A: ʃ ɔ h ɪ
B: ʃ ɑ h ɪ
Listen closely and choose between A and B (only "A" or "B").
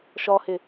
A